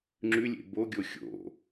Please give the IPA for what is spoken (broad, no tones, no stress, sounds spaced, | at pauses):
ŋ͡ǁ ʉ lʲ ḛ b o ɡʲ o xʲ o̰